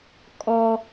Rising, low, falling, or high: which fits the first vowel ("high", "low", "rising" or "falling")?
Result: high